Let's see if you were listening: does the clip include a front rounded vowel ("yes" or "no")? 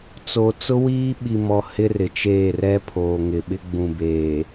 no